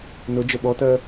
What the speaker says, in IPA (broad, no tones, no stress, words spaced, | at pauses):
nʊd͡ʒə ɓɔtɜ